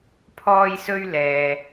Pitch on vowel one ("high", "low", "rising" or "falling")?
high